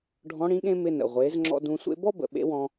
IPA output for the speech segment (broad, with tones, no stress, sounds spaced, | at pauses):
ɖʱ ɔ̃˧˥ ɽ ĩ˧˥ ɠ ẽ˥ m ɪ˧ n ə̰˩ ʁʷ e˩˧ z ŋ͡ǁ ɔ̰˧ d ũ˧ sʷ ḛ˥ b ɔ˥ b ə̰˩ ɓ ḛ˥ w ɔ̃˧